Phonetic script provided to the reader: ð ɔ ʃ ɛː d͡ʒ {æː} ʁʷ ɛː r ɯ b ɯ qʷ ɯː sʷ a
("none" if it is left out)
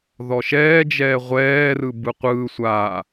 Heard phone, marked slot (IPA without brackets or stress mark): ɛː